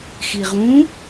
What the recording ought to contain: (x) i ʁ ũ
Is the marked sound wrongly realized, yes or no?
no